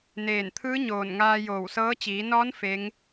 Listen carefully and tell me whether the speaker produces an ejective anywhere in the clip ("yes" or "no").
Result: no